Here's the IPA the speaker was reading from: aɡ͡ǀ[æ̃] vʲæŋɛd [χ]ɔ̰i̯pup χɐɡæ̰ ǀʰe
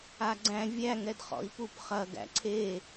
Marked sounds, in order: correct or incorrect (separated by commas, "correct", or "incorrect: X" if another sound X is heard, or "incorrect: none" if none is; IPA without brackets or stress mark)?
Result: correct, correct